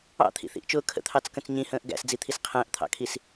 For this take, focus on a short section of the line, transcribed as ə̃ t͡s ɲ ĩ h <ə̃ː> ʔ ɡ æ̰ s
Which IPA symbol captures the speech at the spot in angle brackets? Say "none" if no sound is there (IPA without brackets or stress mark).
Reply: ə̃ː